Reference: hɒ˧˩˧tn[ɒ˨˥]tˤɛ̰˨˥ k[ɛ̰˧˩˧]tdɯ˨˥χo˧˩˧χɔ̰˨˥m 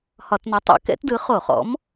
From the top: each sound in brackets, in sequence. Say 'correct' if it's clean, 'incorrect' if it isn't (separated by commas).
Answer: correct, incorrect